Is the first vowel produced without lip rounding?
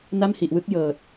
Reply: yes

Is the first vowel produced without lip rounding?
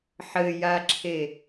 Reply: yes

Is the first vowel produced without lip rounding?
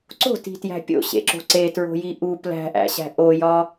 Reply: no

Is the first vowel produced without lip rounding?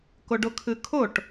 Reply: no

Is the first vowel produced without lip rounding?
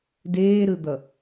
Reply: yes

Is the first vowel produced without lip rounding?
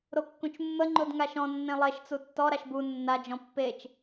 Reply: no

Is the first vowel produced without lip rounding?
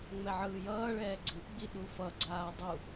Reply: yes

